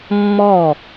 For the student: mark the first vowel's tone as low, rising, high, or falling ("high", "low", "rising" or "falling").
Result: falling